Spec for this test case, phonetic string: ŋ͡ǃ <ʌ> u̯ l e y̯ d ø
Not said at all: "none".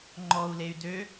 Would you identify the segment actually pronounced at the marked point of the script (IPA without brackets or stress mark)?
ɔ